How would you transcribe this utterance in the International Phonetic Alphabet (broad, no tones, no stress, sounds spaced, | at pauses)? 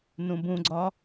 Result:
n ũ b ũ ɡ͡ǀ ɒ